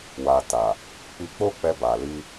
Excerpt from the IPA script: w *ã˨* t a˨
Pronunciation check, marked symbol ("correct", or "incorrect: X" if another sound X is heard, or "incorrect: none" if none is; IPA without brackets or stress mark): incorrect: a˨